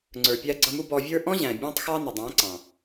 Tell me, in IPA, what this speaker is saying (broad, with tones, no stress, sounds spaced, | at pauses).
ŋ͡ǀ ə˞˨ pʲ æ˧ ɡ͡ǀ ʌ˧ m u˦ b ɔ˧ vʲ ə˞˦ ʔ ɔ̃˦ ʑ æ̃˨ bʲ ɑ̃˦ tˤ x ɑ˦ n ʌ˨ dˤ æ̃˨˦ ǀ ɑ̃˨